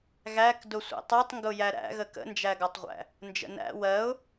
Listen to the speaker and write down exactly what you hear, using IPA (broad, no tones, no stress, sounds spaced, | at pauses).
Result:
ɣ æ k d ʊ sʷ ɛ̰ tˤ ɛ tˤ ŋ ɡ ʊ j æ ɾ æ̰ ɣ ə k ə̰ n d͡ʒ æ ɡ ɒ tˤ ʁʷ æ̰ | n d͡ʒ ə̰ n æ̰ w ɜ ʊ̯